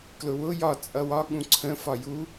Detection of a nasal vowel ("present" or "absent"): present